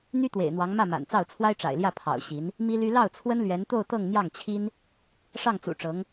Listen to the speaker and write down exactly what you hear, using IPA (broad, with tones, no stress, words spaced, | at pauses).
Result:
n̪y˥t̪wḛ˨˩ɪ̯n̪wɑ˧˥ŋ mä˥˩ma̰˨˩nt͡sɑ˥˩ʊ̯ t͡sʰwa˥ɪ̯ʈ͡ʂa̰˨˩ɪ̯ljä˥˩ pʰɑ̰˨˩ʊ̯ɕi˧˥n | mi˥ly˥ lɑ˥˩ʊ̯t͡sʰwə˥nlɥɛ˧˥nt̪o˥˧ʊ̯ t̪ɤ˥˧ŋn̪jɑ˥˩ŋt͡ɕʰi˥n | ʂɑ˥˩ŋt͡sṵ˨˩ʈ͡ʂɤ˧˥ŋ